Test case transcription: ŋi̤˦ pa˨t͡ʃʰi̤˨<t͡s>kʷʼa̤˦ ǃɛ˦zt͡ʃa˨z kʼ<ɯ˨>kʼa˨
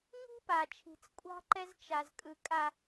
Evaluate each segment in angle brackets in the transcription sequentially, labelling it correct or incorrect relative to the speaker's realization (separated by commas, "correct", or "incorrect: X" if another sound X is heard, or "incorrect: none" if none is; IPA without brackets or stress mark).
correct, correct